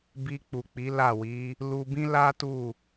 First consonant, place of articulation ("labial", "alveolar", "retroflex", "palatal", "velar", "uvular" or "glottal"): labial